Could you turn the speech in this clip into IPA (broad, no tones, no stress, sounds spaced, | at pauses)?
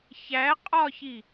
ç æ qʼ ɒ ç i